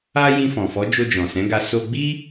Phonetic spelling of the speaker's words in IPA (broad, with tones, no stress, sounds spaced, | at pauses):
a˦ j ĩ˧ f ɔ̃˨ f ɔ˨˦ d͡ʒ o˧ d͡ʒ ɔ̃˨ s ɛ̃˨˦ ɡ a˧ s o˧ ɡ͡b i˦